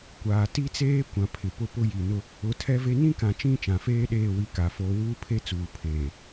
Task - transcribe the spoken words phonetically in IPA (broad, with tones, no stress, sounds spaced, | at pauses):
kʷ aː˨ t i˦ t͡s eː˦ kʷ ã˨ pʰ ɪ˨ p ʊ˦ p ʊ˦ j i˨ n ʊ˦ | ʊ˨˦ tʰ ɛ˦ v e˦ n ĩ˦ k ã˨ t͡ʃ ĩ˦˨ t͡ʃ ã˨ f eː˦ ɗ eː˦˨ w i˦ k a˨˦ f oː˦ w uː˦ pʰ e˦ t͡s uː˨ pʰ eː˨